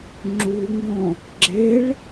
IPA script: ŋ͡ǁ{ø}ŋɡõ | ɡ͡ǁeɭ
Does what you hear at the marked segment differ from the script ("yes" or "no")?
yes